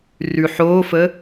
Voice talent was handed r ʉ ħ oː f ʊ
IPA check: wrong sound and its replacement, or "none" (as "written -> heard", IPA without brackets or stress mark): ʊ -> ə